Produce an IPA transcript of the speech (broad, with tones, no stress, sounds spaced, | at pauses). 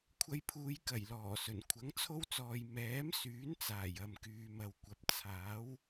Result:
kʷʰ ɐ˧ j pʰ uː˨˧ j k ɐ˨˩ j l ɔː˨˩ s ɵ˨˩ n kʷʰ ɐ˨˥ ŋ t͡sʰ o˥ w t͡s ɔː˨ j m ɛː˨˥ m s yː˨˥ n t͡s aː˨˩ j ɐ˨ m k yː˨ m ɐ˨ w kʷ ɐ˨ p̚ t͡sʰ aː˨˥ w